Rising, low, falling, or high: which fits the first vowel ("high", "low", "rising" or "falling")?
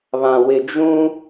low